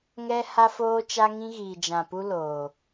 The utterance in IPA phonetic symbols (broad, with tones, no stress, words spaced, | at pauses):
ŋɛ˦ ha˦foː˦t͡ʃa˦ ŋĩ˦ ɣiː˨d͡ʒã˨pu˦ loː˨